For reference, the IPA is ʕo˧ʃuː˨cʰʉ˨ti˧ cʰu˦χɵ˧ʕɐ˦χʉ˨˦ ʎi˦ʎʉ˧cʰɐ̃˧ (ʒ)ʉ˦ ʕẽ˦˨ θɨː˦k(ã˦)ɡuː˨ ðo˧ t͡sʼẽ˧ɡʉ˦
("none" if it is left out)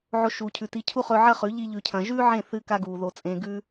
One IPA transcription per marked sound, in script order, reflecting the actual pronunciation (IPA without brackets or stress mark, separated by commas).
ʒ, a˦